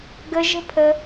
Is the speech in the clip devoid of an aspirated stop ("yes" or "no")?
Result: no